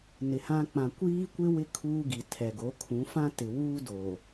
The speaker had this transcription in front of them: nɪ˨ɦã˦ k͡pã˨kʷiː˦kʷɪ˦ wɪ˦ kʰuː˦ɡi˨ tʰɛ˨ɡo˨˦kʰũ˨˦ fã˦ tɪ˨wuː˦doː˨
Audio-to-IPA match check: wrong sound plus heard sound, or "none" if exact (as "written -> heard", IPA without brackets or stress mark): ɦ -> h